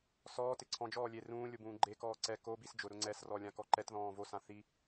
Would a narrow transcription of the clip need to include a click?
yes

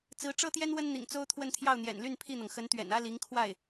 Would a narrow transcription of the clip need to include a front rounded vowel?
yes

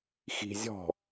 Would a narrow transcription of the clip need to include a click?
no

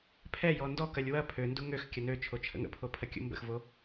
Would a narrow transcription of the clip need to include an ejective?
no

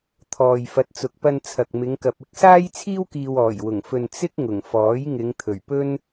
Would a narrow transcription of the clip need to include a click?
no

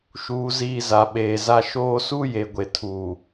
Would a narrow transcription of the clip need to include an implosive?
yes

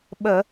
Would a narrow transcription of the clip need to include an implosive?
yes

